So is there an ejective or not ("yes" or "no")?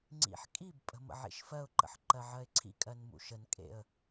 yes